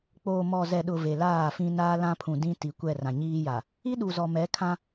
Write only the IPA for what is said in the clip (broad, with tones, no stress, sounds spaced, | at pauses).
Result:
k͡p oː˨ m ɔ˨ z ɛ˨ ɗ ʊ˨ v e˨ l aː˦˨ f ĩ˦ n aː˦ l ã˦ pʰ ũ˨ d ĩ˦ t i˨ kʷ ɛ˦˨ r ã˨ ɲ iː˦ j a˨ | i˦ ɗ u˨ z ɔ˨ m ɛ˨˦ kʰ ã˦